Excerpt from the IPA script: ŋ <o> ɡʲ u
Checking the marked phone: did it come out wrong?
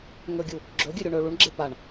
yes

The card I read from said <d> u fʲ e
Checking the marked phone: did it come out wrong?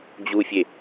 yes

